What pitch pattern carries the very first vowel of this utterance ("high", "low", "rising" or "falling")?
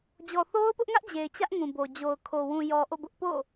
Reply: low